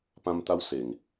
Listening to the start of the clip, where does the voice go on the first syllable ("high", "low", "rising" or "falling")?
high